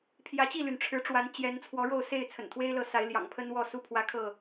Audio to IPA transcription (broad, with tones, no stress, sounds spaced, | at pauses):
pʰ j ä˨˦ t͡ɕ i˥˨ l y˩ n ʈ͡ʂʰ ɻ̩˨˦ ʈ͡ʂ w a˨˦ n t͡ɕ j ɛ˨˦ n t͡sʰ w ɔ˨˦ ɻ o˥˨ ʊ̯ s e˥˨ ɪ̯ t͡sʰ ə̰˨˩ n t̪ʰ w e˦ ɪ̯ l ɤ˨˦ s a˨˦ ɪ̯ l j ɑ̰˨˩ ŋ pʰ ə˦ n w ɔ˥˨ s u˦ pʰ w ä˦ kʰ ɤ˥˨